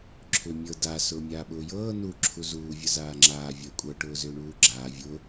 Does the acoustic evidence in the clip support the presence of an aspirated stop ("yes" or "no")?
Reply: yes